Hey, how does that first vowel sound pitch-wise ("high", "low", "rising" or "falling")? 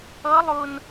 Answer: rising